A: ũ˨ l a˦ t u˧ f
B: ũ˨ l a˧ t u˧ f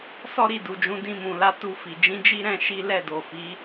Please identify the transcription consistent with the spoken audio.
B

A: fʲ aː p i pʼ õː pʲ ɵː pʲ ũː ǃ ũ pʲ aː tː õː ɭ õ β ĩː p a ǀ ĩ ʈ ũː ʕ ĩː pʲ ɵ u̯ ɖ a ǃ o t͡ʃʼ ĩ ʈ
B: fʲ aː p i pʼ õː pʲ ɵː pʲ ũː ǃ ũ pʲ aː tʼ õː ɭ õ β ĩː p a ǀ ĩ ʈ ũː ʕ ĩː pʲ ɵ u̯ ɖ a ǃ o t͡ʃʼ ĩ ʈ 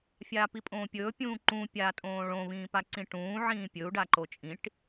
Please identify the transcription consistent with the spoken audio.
B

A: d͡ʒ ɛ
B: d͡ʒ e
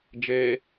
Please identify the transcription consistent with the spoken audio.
B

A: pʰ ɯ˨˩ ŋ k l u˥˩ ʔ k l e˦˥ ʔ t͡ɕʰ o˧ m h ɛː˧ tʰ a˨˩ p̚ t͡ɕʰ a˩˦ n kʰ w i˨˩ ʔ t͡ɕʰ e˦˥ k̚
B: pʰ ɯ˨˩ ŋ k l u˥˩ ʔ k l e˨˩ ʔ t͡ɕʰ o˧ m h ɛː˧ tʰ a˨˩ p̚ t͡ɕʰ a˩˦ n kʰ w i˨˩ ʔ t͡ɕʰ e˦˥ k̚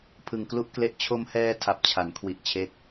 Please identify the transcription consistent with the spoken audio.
A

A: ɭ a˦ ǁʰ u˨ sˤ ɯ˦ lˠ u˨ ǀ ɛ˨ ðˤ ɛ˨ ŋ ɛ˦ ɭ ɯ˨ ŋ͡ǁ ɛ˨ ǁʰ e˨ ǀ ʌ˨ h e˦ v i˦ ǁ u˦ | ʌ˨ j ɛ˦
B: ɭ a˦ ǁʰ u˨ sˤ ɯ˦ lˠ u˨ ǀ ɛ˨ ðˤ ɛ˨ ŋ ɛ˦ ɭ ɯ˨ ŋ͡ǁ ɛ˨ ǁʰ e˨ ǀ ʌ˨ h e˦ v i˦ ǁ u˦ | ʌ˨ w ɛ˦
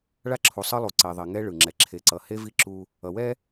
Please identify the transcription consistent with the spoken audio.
B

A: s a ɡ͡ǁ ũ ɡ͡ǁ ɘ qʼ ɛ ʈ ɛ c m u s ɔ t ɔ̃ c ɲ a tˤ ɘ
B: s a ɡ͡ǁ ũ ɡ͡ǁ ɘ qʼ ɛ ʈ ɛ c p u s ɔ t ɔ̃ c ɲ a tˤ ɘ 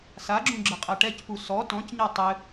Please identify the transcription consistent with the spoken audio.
B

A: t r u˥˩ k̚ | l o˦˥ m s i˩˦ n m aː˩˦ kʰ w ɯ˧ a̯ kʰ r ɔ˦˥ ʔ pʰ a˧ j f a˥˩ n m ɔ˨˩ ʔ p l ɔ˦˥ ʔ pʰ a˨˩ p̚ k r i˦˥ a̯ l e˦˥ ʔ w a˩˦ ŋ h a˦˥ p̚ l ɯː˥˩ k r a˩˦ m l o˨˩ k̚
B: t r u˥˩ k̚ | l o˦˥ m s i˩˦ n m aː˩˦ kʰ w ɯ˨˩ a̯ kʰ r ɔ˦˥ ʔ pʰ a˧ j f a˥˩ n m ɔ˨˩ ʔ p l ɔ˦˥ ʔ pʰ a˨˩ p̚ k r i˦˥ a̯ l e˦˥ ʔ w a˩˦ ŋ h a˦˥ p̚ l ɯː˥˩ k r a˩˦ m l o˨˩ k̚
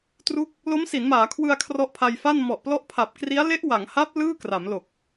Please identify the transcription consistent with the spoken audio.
A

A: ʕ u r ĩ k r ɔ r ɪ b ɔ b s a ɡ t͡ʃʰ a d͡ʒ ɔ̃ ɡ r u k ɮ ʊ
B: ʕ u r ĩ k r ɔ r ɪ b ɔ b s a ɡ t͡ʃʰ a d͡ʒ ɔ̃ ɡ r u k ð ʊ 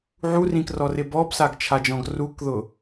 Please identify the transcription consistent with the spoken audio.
B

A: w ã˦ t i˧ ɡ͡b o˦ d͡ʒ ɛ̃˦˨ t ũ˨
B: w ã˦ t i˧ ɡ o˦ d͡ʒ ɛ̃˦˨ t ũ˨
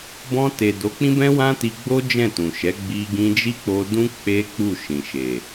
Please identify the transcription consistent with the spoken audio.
A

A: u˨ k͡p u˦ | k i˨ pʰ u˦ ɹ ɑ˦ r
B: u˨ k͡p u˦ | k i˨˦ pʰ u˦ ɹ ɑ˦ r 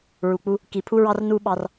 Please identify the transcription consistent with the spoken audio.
A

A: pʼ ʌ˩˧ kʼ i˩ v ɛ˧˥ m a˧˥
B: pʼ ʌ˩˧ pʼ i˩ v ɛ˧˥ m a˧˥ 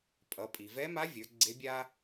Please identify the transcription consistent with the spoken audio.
B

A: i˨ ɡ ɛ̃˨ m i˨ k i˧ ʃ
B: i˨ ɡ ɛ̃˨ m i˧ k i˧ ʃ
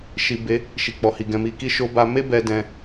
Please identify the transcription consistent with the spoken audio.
A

